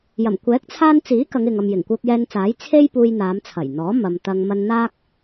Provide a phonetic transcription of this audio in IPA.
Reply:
j ɐ˨˩ m kʷ ɛː˨˥ k̚ t͡sʰ aː˧ n t͡s iː˨˥ k ɐ˨˧ ŋ ɪ˨ ŋ ɐ˨ m j ɪ˨˩ ŋ kʷ œː˧ k̚ j ɛː˧ n t͡s aː˨˥ j t͡sʰ e˥ j p uː˧ j n̪ aː˨˧ m t͡sʰ ɐ˨˩ j n̪ ɔː˨˥ m ɐ˨ m t̪ ɐ˧ ŋ m ɐ˧ n n̪ aː˥ k̚

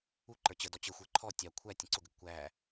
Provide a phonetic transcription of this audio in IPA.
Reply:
u ǃ ə˞ t͡ɕ ə d ɔ t͡ɕ ə xʷ ə˞ ǃʰ ɔ tʲ ɑ kʷʰ æ tʲ ə̃ ǀ ʊ ɡ ə ɡ kʷ æ

